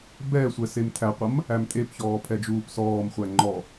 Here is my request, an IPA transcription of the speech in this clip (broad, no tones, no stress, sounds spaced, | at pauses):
b ɛ sʷ ɛ s e m tʰ æ qʷ ʌ m | æ m tʼ e p ç ɔː pʰ ɛ d͡ʒ uː p s ɔː m χʷ æ ŋ͡ǃ ɔ